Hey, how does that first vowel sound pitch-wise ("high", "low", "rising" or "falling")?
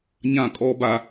falling